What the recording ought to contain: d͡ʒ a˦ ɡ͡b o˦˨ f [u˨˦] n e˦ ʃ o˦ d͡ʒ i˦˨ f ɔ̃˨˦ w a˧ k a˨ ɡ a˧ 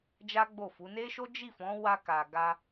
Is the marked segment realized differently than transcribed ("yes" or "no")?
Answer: no